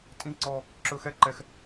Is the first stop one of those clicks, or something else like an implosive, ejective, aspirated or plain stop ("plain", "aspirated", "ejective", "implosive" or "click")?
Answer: ejective